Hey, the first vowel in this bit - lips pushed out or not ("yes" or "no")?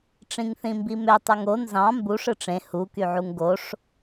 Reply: no